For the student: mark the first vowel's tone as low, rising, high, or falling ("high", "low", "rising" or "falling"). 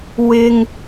low